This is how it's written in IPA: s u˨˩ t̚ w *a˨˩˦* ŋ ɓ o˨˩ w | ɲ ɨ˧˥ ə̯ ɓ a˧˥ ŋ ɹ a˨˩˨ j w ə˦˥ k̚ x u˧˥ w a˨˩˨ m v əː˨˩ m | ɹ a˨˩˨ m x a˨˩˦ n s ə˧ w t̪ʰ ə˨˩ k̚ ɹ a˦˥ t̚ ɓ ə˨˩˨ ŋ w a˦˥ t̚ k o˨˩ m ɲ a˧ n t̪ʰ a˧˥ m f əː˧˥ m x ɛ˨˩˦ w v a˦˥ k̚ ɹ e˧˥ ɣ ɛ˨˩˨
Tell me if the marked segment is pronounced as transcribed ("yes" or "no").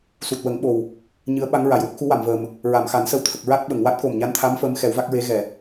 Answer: no